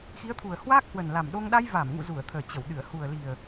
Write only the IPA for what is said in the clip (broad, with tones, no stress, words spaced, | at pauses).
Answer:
xi˨˦ə̯t̪ʰu˨˩ə̯hwaː˦˥k̚ hwə˨˩nla˨˩mɗo˧ŋ ɗa˧jvaː˧˩mŋṵ˧˨ zu˧˩ə̯t̪ʰəː˨˩ t͡ɕə˧˩wɗɨ˧˩ə̯ hu˨˩ə̯li˨˩ə̯